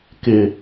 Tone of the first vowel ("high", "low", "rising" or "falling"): low